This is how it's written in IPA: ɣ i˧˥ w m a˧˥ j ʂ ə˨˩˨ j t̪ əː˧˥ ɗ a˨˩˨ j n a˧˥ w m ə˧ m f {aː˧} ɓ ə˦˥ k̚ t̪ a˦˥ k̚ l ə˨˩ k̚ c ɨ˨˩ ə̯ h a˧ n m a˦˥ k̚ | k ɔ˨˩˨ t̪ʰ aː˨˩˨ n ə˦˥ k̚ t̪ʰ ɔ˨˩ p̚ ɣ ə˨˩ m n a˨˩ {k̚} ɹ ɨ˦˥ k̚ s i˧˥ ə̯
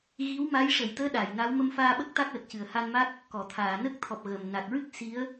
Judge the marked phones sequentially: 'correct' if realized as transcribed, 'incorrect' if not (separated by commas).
correct, correct